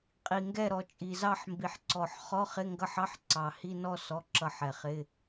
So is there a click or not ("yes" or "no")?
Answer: yes